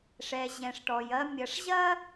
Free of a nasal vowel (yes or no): no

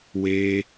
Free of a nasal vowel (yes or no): yes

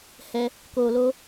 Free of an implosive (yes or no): yes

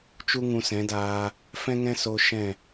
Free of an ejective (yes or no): yes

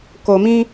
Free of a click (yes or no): yes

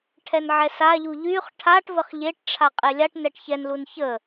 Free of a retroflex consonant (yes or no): no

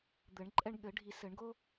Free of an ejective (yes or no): no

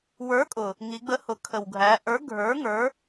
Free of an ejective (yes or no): no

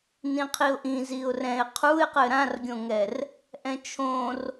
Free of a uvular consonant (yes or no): no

